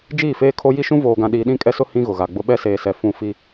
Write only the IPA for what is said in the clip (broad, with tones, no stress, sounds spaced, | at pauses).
d͡ʒ iː˦˨ f eː˦ kʰ o˦ j i˦ ʃ ũ˦ v oː˨ ɡ ã˨ ɗ iː˨ ɗ ĩ˦˨ kʼ ɛ˦ s ʊ˦ h ĩ˦ ɣ ʊ˨ ɣ a˨ ɡ͡b ʊ˦ ɓ ɛ˦ s eː˨ s ɛ˨ f ũ˦˨ f i˦